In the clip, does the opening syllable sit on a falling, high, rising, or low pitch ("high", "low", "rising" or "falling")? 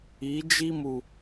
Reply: rising